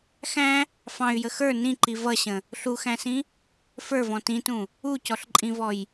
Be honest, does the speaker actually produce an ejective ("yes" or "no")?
yes